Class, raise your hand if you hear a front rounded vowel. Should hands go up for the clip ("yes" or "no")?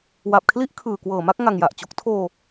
no